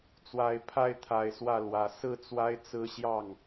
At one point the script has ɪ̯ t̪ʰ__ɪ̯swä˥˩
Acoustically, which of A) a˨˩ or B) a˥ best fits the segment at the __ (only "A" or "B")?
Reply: A